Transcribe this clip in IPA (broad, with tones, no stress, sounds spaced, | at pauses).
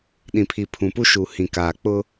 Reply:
ɗ ĩ˨ pʰ i˨ pʰ ũ˨ p u˦ ʃ u˨ h ĩ˨ k aː˨ k͡p ʊ˦